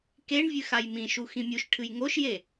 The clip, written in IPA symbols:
k e ɳ vʲ ɨ x a j m ĩ ʃ u x ĩ mʲ u ʃ ʈʰ ɨ j ŋ o ʃ j e

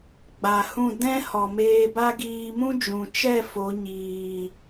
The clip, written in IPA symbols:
ɡ͡b a˨ h ũ˦˨ d ɛ̃˦ h ɔ˨ m eː˧ b a˦ ɡ iː˧ m ũ˦ d͡ʒ ũ˨ t͡ʃ ɛ˦˨ f o˨˦ ɲ iː˨

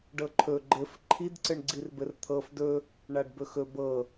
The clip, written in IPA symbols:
ɖ ɤ ǃʰ ɵ ɡ͡ǃ ɘ f ǃʰ i d ǀ ɘ ɳ ɡ͡ǀ i r b ɘ r t̪ʰ ɤ f d ɵ | ɳ a ɖ b ɵ x ɵ b ɤ

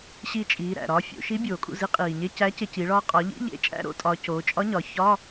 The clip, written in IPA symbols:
ɕ iː˧ t͡ʃʼ iː˩˧ ɾ æ̰˩ ɾ ɒː˧ fʲ o̰˩˧ ʃ i˧˥ bʲ oː˩ kʼ ṵ˥˩ z i˧˥ qʼ iː˩ ɲ e˧˥˧ c æ˧˥ c e˧ c i˩˧ ɭ ɒː˧ qʼ ɒ˩˧ ʎ ḭ˧˥˧ ʎ ḛ˧˥˧ t͡ʃʼ æ̰˧˥˧ ɾ o̰˧˥ tʼ ɒː˩˧ c oː˩˧ t͡ʃʼ ɒ˧˥ ɲ ɒ˩˧ ç ɒː˧˥˧

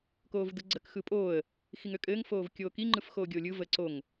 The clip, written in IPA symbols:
k oː v d ɯ ɡ͡ǀ ə k x ɯ pʼ oː ə̯ | x i ŋ ø kʼ ɘː ŋ f oː v kʲ oː k i ŋ͡ǃ ɯ f x oː ɡʲ o lʲ ɯ v ə ǀ o ŋ

